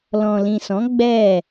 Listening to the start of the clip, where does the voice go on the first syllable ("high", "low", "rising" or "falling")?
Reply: low